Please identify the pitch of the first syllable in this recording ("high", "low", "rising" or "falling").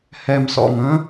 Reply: low